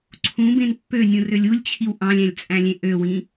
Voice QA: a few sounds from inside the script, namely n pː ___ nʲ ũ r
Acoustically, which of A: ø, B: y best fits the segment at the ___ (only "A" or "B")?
A